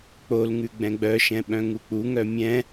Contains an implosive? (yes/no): yes